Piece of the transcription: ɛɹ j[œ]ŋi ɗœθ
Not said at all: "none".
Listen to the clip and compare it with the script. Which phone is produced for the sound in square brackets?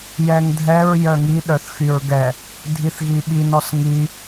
œ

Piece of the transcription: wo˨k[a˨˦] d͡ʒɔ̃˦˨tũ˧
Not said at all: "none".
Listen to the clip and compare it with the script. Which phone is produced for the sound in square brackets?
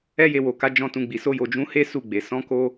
a˨˦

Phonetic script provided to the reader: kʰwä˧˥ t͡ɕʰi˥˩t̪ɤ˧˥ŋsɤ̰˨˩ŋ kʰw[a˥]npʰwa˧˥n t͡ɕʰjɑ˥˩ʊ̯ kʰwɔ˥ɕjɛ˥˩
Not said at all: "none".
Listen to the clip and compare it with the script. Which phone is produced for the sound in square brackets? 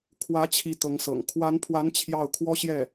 a˧˥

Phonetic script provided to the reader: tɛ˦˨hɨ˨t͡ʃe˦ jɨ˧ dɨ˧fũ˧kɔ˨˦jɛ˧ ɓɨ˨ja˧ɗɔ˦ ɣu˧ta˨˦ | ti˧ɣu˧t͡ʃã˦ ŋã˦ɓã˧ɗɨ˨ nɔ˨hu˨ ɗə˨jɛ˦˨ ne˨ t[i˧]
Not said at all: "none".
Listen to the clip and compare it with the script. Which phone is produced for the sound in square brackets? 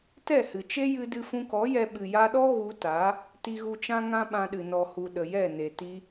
i˧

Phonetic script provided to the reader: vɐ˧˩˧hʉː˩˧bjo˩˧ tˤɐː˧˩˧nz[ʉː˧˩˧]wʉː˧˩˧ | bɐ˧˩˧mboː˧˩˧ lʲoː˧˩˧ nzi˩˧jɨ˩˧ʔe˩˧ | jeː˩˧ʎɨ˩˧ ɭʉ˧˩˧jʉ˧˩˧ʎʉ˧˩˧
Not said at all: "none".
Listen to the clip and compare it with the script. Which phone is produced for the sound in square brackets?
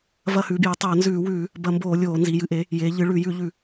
ʉː˧˩˧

